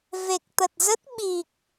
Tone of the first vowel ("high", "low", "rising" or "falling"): low